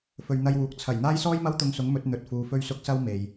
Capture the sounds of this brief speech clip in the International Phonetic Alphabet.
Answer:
f ɵ˨ ɥ n̪ ɐ˧ j w uː˨ k̚ t͡sʰ ɐ˨˩ j n̪ aː˥ j s ɔː˥ j m ɐ˥ w t̪ ʊ˧ ŋ s ʊ˨˥ ŋ m ɵ˨˥ t̚ n̪ ɵ˧ t̚ f uː˧ f ɵ˥ ɥ s ʊ˥ k̚ s ɐ˥ w m e˨ j

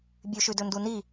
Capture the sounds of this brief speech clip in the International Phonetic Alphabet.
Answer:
bʲ ʉ ʃ ʉ d ɵ n d u n i

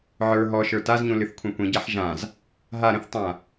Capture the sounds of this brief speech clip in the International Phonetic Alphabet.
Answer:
ʕ ə˞ ɦ ɔ ʃ ə˞ t a z ɲ ũ l ɨ θ kʷʰ ɛ̃ kʷ ĩ ɟ a ħ ʒ ã z | ɦ a ɾ ə̃ θ tˤ ã

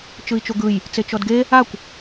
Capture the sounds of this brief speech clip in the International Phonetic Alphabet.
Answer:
t͡ʃ ɯ i̯ t͡ʃ o ɡ ɯ j | t͡s e t͡ʃ ɔ d ɡ e | a kʷ

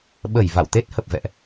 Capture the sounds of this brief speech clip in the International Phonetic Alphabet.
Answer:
ɓ ə˧˩ j v a̰˧˨ w t̪ e˦˥ t̚ h ə˨˩ p̚ v ɛ̰˧˨ ʔ

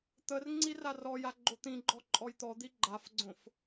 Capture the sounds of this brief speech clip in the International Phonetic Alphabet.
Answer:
t̪ ə r ŋ͡ǀ i r a r ɔ j a ɡ͡ǃ o t̪ ĩ ɡ͡ǃ ɔ ǃʼ ɔ j t̪ ɔ d̪ i ɡ͡ǃ a f ɡ͡ǀ õ f

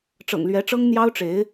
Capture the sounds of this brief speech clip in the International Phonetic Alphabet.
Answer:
ʈ͡ʂ ɤ̰˨˩ ŋ l ɥ ɛ˧˥ ʈ͡ʂ ɤ˥ ŋ n̪ j ɑ˥ ʊ̯ ʈ͡ʂ e˧˥ ɪ̯

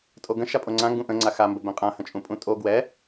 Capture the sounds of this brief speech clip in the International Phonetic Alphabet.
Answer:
tʼ o ɡ ə̃ ʃ a pʼ o ŋ͡ǀ ã ŋ ɡ ũ ʔ ə̃ ŋ͡ǀ a x a m b ə b ɛ̃ qʼ ã h ə̃ t͡ʃʼ ũ pʼ ũ tʼ o ɡ w ɛ

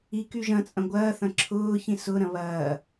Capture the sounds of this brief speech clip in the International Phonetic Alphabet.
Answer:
i k y ʒ ɐ̃ t͡sʼ ɐ̃ ɡʷ ɐː θ ɐ̃ ǁʰ ʊː ç ĩ s ʊ ɾ ɐ̃ β ɐː

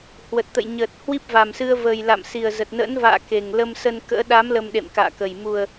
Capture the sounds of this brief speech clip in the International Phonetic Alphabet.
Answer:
h w ə˨˩ t̚ t̪ ə̰˧˨ j ɲ əː˨˩ t̚ h w i˦˥ p̚ v a˨˩ m s ɨ˧ ə̯ v əː˨˩ j l a̰˧˨ m s i˨˩ ə̯ z ə˨˩ t̚ n ə̰˧˥ n v a̰ː˧˨ k e˨˩ ŋ l ə˧ m s ə˧ n k ə̰ː˧˥ ɗ a˨˦ m l ə˧ m ɗ ḛ˧˨ m k a̰ː˧˨ k ə˨˩ j m u˨˩ ə̯

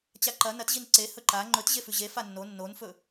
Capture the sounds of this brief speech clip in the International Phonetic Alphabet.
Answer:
t͡ɕ a ǃ ɐ n ɐ t ʑ i n ǀ e h ɵ ǃ a ŋ͡ǃ ɵ t ʑ e f ʉ ʑ e f a nː o nː o n f ɵ

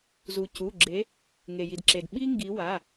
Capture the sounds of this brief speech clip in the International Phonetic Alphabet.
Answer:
z u˩ c u˩˧˩ ɡ͡ǁ e˨˦ | ŋ e˩ j i˩ d ǁ e˩ d ɓ i˥ ŋ ɡ i˨˦ w a˩˧˩

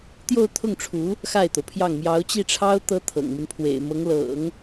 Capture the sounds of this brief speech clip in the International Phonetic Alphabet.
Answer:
t̪ j o˥˧ ʊ̯ t̪ʰ ʊ˥˩ ŋ ʈ͡ʂʰ u˧˥ | x a˥˩ ɪ̯ t̪ o˩ ʊ̯ pʰ j ɑ˥˩ ŋ m j ɑ˧˥ ʊ̯ t͡ɕ i˥˩ ʈ͡ʂʰ ɑ˥ ʊ̯ t̪ ɤ˥ t̪ʰ ɤ̰˨˩ ŋ m i˦ n pʰ w ḛ˨˩ ɪ̯ m ɤ˧˥ ŋ l ɤ̰˨˩˦ ŋ

